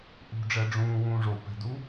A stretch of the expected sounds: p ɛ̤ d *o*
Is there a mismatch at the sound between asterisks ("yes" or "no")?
yes